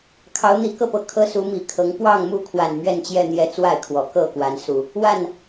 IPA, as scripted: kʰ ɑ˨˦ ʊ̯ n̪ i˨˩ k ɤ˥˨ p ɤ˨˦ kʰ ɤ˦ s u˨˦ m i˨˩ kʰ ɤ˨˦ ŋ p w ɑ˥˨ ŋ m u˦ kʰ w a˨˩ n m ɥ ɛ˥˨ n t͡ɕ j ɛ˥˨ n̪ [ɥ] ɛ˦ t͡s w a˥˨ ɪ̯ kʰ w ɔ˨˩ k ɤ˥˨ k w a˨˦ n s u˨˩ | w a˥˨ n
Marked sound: incorrect: j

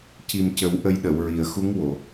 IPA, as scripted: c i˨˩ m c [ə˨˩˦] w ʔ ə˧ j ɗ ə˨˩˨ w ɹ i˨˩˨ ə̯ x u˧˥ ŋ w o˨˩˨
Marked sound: correct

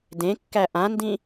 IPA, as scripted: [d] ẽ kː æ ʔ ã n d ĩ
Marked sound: correct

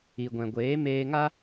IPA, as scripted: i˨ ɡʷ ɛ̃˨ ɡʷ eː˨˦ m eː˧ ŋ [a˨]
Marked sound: incorrect: a˦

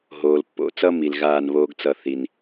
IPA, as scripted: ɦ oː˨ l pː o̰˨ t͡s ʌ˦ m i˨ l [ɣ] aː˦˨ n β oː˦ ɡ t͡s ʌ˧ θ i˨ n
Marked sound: correct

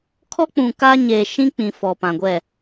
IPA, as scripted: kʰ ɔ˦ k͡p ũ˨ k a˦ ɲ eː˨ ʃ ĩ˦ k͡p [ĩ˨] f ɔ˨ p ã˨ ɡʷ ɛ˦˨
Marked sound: correct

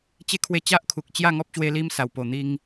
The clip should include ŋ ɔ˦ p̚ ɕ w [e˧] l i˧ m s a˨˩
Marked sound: correct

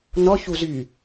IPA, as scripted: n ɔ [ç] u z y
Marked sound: correct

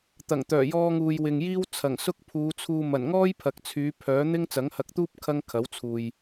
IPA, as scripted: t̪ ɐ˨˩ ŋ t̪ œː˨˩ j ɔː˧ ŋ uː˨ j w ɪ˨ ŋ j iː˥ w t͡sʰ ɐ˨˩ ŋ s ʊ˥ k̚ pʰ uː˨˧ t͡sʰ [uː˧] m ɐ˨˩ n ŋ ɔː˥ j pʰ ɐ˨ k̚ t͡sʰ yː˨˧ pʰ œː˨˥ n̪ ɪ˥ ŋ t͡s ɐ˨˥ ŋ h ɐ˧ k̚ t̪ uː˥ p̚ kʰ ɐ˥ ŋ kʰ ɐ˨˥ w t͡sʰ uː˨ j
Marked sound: correct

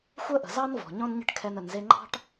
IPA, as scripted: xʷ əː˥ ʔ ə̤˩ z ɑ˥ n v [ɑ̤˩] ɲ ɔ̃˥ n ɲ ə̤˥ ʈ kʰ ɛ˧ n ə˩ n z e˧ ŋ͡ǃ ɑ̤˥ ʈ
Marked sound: incorrect: ɔ̤˩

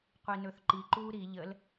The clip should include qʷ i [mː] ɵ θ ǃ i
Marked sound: incorrect: n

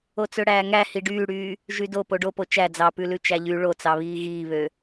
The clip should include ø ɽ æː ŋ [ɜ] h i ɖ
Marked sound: incorrect: æ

